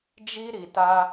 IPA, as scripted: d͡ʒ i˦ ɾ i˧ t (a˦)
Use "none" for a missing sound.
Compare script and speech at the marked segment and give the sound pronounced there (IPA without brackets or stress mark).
a˦